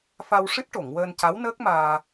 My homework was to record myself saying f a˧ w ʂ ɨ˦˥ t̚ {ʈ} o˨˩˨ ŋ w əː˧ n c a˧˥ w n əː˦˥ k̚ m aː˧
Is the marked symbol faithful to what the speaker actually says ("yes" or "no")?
yes